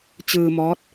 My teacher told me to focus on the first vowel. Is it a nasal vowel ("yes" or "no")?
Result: no